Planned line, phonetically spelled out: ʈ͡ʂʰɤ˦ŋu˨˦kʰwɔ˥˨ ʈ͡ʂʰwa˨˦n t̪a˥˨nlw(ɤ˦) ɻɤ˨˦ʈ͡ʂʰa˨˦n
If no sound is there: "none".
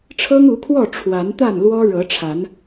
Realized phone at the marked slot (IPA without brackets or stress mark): ɔ˦